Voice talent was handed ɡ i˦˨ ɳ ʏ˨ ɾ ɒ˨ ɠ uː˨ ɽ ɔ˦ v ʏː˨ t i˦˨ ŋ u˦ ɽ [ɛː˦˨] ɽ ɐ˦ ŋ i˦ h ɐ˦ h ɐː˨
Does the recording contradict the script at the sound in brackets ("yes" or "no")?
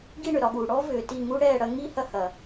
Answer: no